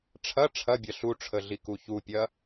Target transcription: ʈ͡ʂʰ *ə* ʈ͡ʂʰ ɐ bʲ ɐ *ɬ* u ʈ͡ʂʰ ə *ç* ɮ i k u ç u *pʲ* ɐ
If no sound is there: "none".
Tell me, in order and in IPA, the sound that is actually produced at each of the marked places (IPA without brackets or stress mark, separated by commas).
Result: ɐ, ɬ, none, pʲ